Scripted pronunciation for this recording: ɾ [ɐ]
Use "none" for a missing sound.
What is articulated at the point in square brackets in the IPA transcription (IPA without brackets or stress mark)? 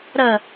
ɐ